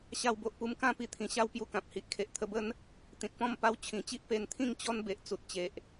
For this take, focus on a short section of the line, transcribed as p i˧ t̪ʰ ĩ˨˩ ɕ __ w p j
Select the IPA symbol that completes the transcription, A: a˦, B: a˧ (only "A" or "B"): A